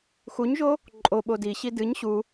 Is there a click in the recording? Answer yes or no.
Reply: yes